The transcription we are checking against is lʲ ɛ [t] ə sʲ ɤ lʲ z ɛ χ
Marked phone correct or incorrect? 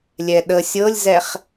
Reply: incorrect